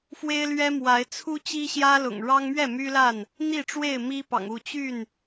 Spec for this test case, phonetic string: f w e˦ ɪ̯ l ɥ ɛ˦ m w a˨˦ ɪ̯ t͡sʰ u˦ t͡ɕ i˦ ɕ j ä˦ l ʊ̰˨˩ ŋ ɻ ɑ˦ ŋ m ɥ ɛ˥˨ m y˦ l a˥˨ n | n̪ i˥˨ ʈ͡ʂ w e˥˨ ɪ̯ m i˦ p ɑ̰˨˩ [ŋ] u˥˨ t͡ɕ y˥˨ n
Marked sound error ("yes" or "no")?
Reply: no